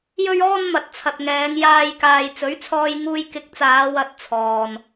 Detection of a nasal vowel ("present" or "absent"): absent